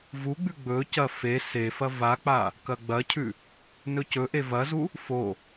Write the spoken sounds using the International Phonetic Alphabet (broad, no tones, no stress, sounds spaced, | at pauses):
v u ɡ͡b ʉ ɡ͡b ɵ c ɐ f e s e f ɐ v a k͡p a | k ɐ ɡ͡b ɐ cʰ ʉ | n ɵ c ɵ ʔ e v ɐ z u | f o